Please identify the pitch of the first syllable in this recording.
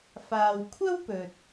low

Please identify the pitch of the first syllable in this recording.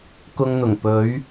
high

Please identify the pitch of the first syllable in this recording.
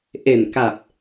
low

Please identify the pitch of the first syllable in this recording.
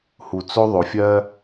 low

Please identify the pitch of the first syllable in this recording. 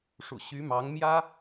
low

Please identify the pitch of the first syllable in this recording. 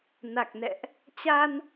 low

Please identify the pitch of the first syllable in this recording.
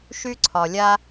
high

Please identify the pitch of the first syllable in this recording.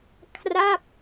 falling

